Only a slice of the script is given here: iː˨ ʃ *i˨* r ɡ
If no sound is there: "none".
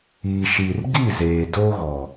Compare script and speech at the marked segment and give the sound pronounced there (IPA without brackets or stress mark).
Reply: i˨